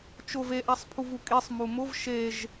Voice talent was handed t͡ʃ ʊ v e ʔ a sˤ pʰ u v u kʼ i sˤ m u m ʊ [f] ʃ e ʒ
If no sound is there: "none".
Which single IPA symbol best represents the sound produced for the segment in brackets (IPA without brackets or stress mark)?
v